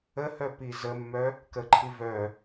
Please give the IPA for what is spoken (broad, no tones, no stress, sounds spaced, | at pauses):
ə h œ p i z ə mː œ | k ə ǃʰ i v œ